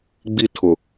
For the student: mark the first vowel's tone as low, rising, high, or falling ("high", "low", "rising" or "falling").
high